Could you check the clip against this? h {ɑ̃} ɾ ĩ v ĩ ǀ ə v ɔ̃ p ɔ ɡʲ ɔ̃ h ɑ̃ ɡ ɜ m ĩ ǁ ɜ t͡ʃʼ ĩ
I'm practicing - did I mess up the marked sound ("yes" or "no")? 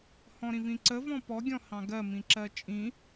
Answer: yes